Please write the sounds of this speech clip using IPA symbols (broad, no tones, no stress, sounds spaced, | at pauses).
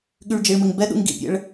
ɠ y ɭ d͡ʒ i ɭ m ɘ ŋ b ɛ ɗ ṵ ŋ ɡ ḭ pʲ ɛ̰ ɭ